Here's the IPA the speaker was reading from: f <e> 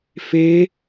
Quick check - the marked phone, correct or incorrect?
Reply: correct